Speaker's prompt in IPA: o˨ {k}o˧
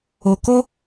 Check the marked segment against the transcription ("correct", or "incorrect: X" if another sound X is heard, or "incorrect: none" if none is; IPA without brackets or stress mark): correct